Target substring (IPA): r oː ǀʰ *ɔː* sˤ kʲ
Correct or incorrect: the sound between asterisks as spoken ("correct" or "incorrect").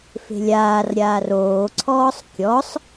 correct